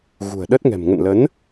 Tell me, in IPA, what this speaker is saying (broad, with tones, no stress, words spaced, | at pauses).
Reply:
ɣṳ˨˩ə̯ɗə˦˥t̚ŋɛ̤˨˩m ŋə̰˧˨nlə˨˦n